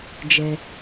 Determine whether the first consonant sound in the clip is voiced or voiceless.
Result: voiced